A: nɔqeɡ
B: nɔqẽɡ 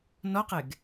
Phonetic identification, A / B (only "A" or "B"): A